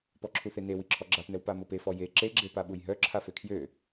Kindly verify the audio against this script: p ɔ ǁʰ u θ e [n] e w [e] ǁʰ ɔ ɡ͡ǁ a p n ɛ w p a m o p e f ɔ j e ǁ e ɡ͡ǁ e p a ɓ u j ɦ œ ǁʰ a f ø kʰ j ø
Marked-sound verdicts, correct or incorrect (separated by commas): correct, incorrect